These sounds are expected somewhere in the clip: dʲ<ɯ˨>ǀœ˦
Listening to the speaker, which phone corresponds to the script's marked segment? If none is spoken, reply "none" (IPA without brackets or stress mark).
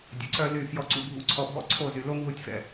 ə˨